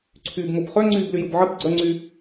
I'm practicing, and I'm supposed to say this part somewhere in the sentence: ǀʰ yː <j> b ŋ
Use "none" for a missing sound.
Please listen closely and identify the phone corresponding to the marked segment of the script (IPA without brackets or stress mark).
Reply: none